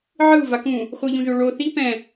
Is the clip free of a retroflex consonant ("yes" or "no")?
no